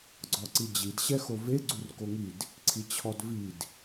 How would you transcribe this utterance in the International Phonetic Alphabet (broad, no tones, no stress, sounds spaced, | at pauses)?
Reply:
ɡ͡ǀ ɔ ǀ i d͡ʑ i d ɕ ɛ x o v e ɡ͡ǀ u r k o ŋ i d | ǀʰ i t͡ɕʰ ɔ d v i d